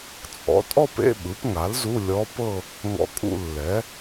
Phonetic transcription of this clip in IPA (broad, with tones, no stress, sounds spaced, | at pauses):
t͡sʼ ɔ̰˩˥ tʼ ɔ˥˧ p ḛ˧˥˧ ɓ ɯ˩˥ p ŋ a˩˥ l z u˧˥˧ lʲ ɔ˧˥ p ɤ˥˧ | ŋ ɔ̰˧ kʼ ṵ˥˧ lː ɛ˩˥